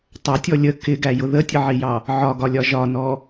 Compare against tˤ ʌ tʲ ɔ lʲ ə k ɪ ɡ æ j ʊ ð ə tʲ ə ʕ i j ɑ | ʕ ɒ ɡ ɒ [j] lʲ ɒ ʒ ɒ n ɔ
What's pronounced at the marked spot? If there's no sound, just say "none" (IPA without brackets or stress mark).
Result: none